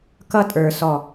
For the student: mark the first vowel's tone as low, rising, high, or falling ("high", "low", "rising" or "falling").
high